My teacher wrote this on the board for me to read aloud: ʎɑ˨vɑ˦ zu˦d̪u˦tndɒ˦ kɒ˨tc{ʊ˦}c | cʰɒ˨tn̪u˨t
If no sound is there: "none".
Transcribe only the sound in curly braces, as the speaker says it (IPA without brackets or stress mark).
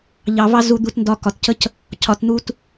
ə˦